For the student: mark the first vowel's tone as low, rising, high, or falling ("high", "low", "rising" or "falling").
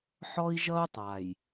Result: high